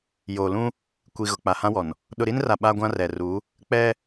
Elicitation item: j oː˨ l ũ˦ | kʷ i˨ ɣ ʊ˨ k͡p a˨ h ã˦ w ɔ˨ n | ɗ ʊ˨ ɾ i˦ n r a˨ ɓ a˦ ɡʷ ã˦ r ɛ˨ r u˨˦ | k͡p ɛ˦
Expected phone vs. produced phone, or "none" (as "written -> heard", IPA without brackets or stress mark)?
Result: none